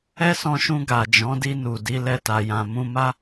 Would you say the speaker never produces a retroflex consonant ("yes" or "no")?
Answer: yes